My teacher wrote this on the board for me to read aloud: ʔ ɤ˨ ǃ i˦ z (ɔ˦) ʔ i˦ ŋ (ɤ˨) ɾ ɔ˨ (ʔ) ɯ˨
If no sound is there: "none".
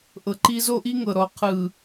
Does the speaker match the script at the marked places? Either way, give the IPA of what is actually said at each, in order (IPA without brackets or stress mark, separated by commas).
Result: o˦, ɤ˨, qʰ